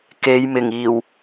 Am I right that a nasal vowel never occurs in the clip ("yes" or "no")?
yes